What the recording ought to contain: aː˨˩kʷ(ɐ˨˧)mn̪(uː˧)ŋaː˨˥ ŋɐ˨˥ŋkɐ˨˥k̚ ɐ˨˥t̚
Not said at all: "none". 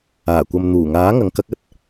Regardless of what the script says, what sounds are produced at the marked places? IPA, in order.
ɐ˨, uː˨˩

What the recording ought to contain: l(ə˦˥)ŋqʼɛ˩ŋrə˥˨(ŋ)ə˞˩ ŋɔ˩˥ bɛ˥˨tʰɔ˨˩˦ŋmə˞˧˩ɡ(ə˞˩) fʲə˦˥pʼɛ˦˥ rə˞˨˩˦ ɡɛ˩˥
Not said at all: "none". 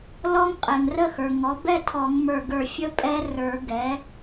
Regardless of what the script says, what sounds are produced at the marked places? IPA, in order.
ɔ˦˥, x, ə˞˧˩

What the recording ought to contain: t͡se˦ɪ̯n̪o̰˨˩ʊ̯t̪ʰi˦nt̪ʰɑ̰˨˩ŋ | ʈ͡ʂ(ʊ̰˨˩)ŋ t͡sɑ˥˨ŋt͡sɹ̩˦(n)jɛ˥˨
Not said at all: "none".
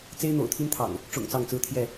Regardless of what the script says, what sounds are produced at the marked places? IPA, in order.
ʊ̰˨˩, t̪ʰ

